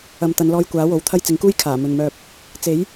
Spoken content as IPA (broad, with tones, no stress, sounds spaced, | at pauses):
ɐ˨ m t̪ ɐ˨˧ n l ɔː˧ j kʷ aː˨˥ w o˨˧ w t̪ʰ ɐ˥ j t͡s ɪ˨˧ ŋ k uː˥ j kʰ aː˨˩ m ɵ˨ n m œː˧ p̚ | t͡s e˨˥ j